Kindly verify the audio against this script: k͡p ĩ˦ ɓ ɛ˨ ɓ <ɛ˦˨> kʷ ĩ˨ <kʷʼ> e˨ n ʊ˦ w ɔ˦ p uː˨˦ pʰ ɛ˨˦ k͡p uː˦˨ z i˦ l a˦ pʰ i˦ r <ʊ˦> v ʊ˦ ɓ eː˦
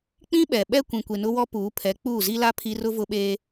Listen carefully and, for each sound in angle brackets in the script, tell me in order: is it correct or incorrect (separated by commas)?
incorrect, incorrect, correct